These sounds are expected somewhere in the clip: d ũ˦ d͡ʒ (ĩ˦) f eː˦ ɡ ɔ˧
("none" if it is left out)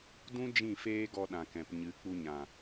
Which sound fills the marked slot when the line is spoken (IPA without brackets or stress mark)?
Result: ĩ˦˨